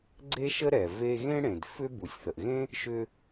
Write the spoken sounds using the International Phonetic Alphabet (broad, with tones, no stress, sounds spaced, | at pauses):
ɡ͡ǀ e˥ ʃ ə˥ ɾ ɛ˩ v e˧ ɣ ẽ˥ ɽ ẽ˩ d f ʏ˥ b u˩ sʲ θ ə˩ ʔ ɣ ẽ˥ | ʃ ʏ˧